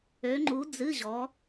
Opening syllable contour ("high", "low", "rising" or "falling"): rising